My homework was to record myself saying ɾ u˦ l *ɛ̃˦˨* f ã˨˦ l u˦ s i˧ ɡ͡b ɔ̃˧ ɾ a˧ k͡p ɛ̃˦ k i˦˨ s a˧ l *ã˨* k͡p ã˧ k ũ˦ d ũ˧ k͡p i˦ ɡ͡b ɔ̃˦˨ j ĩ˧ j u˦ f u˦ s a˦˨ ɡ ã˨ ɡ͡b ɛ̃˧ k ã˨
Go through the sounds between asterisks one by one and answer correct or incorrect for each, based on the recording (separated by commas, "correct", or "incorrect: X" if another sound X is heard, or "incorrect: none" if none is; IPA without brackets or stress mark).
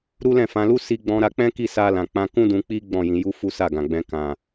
correct, correct